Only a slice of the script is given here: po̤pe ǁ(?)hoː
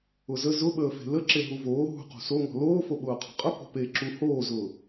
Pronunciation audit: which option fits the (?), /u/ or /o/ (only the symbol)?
u